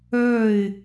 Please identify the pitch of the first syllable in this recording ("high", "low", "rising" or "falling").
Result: falling